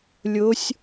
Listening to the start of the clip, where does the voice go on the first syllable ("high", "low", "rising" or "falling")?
rising